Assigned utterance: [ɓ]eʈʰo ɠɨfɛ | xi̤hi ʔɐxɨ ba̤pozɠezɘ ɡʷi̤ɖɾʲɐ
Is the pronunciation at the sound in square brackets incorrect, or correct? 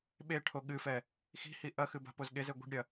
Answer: correct